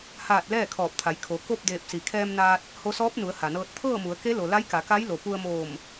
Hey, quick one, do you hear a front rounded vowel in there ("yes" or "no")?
no